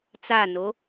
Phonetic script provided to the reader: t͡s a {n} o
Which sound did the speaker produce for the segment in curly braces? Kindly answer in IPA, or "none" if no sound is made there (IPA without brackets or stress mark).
n